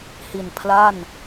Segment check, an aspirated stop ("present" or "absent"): present